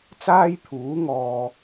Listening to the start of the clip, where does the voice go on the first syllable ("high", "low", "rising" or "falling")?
high